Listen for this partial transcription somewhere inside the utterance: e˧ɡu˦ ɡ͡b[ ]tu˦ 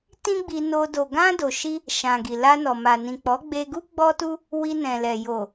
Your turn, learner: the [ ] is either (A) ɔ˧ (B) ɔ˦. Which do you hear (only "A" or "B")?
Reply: B